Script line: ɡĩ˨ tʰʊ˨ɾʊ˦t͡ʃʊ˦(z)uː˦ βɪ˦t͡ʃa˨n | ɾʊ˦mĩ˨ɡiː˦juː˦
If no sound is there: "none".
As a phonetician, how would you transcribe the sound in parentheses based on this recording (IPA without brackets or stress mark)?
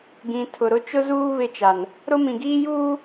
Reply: z